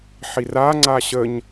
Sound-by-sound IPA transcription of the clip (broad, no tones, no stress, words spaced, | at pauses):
ħira ŋ͡ǀaɕəɲ